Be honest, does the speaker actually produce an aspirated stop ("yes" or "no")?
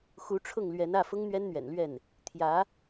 yes